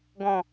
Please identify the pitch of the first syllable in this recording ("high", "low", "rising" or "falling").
falling